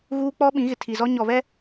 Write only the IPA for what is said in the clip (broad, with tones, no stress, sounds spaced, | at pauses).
ɣ uː˦ k͡p ɔ˦ ɓ ĩ˨˦ ɣ ɪ˨ tʰ i˨ z ɔ˦ ɲ ɔ˨ β ɛ˦